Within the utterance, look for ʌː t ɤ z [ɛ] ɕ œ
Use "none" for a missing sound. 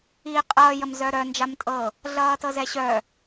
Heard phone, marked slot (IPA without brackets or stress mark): ɛ